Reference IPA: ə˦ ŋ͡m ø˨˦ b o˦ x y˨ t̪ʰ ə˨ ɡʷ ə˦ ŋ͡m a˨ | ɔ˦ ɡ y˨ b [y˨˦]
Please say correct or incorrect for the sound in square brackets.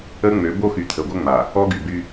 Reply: incorrect